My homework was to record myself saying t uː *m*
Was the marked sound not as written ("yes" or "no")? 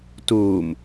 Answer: no